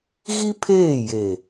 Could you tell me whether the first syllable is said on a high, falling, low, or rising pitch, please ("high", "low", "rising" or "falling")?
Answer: high